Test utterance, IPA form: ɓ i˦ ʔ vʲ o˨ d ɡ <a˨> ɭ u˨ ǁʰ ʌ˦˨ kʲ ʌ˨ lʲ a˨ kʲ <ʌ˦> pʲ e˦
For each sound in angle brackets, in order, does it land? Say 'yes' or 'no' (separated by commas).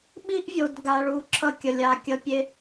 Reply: yes, yes